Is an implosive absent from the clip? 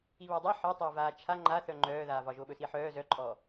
no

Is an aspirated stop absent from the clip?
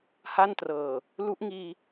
yes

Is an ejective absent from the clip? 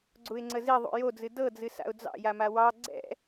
yes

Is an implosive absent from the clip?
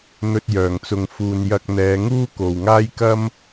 yes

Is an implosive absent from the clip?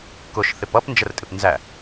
yes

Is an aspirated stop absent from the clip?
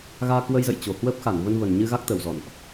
yes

